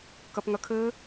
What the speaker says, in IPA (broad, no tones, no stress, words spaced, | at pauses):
kɐpŋɐkʰɘ